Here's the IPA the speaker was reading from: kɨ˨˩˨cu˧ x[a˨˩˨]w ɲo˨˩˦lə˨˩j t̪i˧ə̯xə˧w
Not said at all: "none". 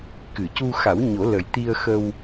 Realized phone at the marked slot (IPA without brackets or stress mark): a˨˩˦